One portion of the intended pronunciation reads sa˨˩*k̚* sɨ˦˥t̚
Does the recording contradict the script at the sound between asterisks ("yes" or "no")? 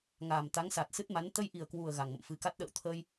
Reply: yes